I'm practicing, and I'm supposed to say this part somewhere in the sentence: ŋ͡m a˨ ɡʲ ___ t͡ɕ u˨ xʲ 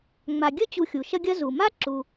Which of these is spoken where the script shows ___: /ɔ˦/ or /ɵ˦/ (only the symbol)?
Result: ɵ˦